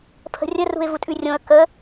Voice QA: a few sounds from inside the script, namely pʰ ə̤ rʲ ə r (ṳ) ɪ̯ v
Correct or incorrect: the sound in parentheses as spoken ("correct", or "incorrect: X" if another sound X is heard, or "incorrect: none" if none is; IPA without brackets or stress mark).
correct